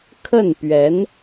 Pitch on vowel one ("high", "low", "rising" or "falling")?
falling